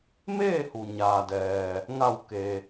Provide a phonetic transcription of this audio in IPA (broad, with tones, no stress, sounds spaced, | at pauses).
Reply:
m eː˥˨ h u˩ ɲ aː˩ d ɛː˩ | ŋ a˧˩ w k e˩